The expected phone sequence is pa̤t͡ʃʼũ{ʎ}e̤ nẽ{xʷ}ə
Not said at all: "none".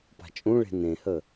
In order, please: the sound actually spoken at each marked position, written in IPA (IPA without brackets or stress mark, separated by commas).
ɭ, h